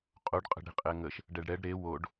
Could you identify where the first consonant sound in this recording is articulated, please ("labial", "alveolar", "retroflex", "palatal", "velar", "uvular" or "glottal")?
uvular